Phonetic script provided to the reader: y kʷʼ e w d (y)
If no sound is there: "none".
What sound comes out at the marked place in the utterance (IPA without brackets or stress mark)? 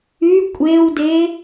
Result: e